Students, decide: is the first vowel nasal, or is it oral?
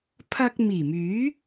oral